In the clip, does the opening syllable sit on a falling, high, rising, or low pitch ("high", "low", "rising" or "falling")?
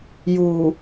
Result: low